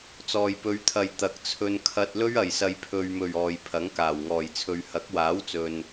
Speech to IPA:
t͡s ɔː˨ j p ɵ˨˧ ɥ t̪ʰ ɐ˨ j t̪ ɐ˨ k̚ t͡sʰ ɵ˧ n kʰ ɐ˧ t̚ l ɵ˥ ɥ ɐ˨˩ j s ɐ˨ j pʰ ɵ˨ ɥ m ɵ˨˩ ɥ ɔː˨ j pʰ ɐ˨˥ ŋ k aː˨˩ w ŋ ɔː˨˩ j t͡sʰ ɵ˨ ɥ h ɐ˨˥ k̚ w aː˨˥ w t͡s ɵ˨ n

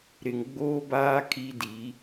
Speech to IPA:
ɾ ɪ˨ ŋ ɡ͡b oː˦ b aː˦ kʰ i˦ d i˨˦

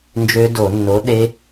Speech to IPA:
n d͡ʒ ø˦˥ d o˧˩˧ nː o˨˥ ɗ e˦˥

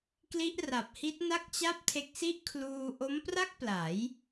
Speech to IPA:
k l i˦˥ ʔ r a˨˩ p̚ h i˦˥ t̚ n a˥˩ k̚ t͡ɕ a˥˩ p̚ tʰ e˦˥ k̚ s i˥˩ ʔ kʰ l uː˧ ʔ o˦˥ m p r a˥˩ k̚ p l a˩˦ j

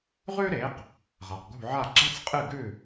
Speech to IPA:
ʁ ʉ˥ ɾ e˩˥ q | ʁ a˩ q ɡ ṳ˥˩ ʕ a˥˩ ɡ͡ǁ a˥ t͡s qʼ ɨ˥˩ ɡ ʉ˥˩

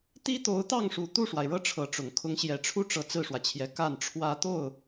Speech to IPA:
t̪ i˥ t̪ o˧˥ ʊ̯ t̪ ɑ˥˩ ŋ ʂ u˨˩ t̪ u˥˩ ʂ w a˩ ɪ̯ ɻ ɤ˥˩ ʈ͡ʂʰ ɤ˧˥ ʈ͡ʂ ʊ˨˩ ŋ kʰ ʊ˧˥ ŋ ɕ j ɛ˨˩ ʈ͡ʂʰ u˥˩ ʈ͡ʂ ɤ˧˥ t͡s ɹ̩˥˩ ʂ w ä˩ t͡ɕʰ j ɛ˧˥ k a˥˩ n ʈ͡ʂʰ w ä˥ t̪ o˥˩ ʊ̯

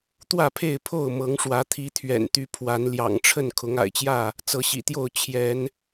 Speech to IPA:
t̪ w ä˥˨ pʰ e˥˨ ɪ̯ pʰ o˥˨ ʊ̯ m ɤ˨˦ ŋ ʂ w ä˨˦ t̪ʰ i˨˦ t̪ʰ ɥ ɛ̰˨˩ n t̪ y˨˦ pʰ w a˨˦ n l j ɑ̰˨˩ ŋ ʈ͡ʂʰ ə˥˨ n kʰ ʊ˨˦ ŋ a̰˨˩ ɪ̯ t͡ɕ j ä˥˨ | t͡s ɤ˨˦ ɕ ḭ˨˩ t̪ j o˥˨ ʊ̯ t͡ɕʰ j ɛ˨˦ n

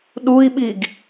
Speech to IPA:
ɗ u i̯ ɓ i ɡ

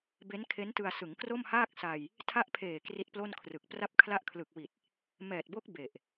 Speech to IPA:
b e˦˥ n kʰ e˦˥ n t ɯ˧ a̯ s ɯ˩˦ ŋ k r o˥˩ m h aː˥˩ k̚ s a˧ j | tʰ a˦˥ ʔ pʰ eː˨˩ k r i˦˥ t̚ p l o˥˩ n kʰ r ɯ˨˩ k̚ p r a˥˩ p̚ kʰ l a˥˩ ʔ kʰ l ɯ˨˩ k̚ w i˨˩ t̚ | m ɛː˨˩ t̚ b o˦˥ k̚ b e˨˩ ʔ

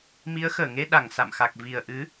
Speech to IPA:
m i˨˦ ə̯ x əː˧˩ ŋ e˧ ɗ a˧˩ ŋ s a̰˧˨ m x a˨˩ k̚ v i˨˩ ə̯ ʔ ɨ˨˦

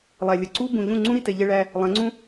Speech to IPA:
lˠ æ˨ lʲ ə˨ ǀ u˦ b ũ˨ ʎ ũ˦˨ ŋ͡ǀ ũ˦ ɾ i˦ t ɛ˧ ʎ ɛ˦ ɭ æ˦ | lˠ ɛ̃˨˦ ŋ͡ǀ ũ˦

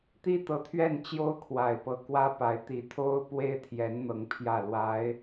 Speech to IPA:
t̪ i˥ t̪ ɤ˧˥ t̪ʰ ɥ ɛ˥˩ n t͡ɕ j o˥ ʊ̯ kʰ w a˨˩ ɪ̯ p ɤ˧˥ k w ä˥ p a˧˥ ɪ̯ t̪ i˧˥ t̪ʰ o˥ ʊ̯ p w e˥ ɪ̯ t̪ʰ j ɛ˧˥ n n̪ ɤ˧˥ ŋ pʰ j ä˥˩ l w a˧˥ ɪ̯

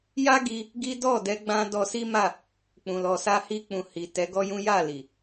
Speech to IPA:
j a˦ ɡ i˧ | ɡ i˦ d ɔ˦˨ d ɛ˧ ɡ͡b ã˧ d ɔ˧ s i˦ m a˦˨ | k͡p ũ˨ l ɔ˨ s a˧ h i˧ k͡p ũ˨ h i˨ t ɛ˨˦ ɡ ɔ˦ j ũ˦ j a˦˨ l i˨

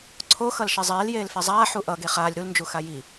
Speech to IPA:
ǀʰ o x ʌ l ʃ e zˤ eː l j eː l f e zˤ aː ħ u ʔ ʌ ɡ e χ aː lʲ ɾ u l n d͡ʒ u x a j i

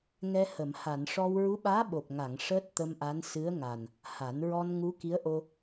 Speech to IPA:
ŋ ɛ˧ h ə˨˩˨ m h a˨˩˨ n ʂ ɔ˧ w ɹ u˧˥ ɓ aː˧˥ ɓ o˨˩ p̚ ŋ a˨˩˨ ŋ ʂ əː˦˥ t̚ t̪ ə˧ m ʔ a˧˥ n s ɨ˧˥ ə̯ ŋ a˨˩ n | h a˨˩˦ n ɹ ɔ˧ n ŋ u˧˥ k i˧˥ ə̯ ʔ o˧

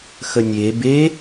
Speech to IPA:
x ə nʲ e b e

